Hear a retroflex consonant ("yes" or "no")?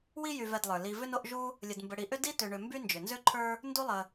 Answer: yes